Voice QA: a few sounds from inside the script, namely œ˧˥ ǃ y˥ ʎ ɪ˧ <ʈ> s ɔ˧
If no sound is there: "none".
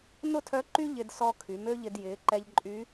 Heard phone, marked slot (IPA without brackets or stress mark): d